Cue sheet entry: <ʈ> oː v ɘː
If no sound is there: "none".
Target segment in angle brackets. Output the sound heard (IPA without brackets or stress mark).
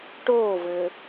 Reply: ʈ